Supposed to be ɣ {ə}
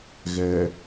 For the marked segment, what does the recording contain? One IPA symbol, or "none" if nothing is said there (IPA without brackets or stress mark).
ɛ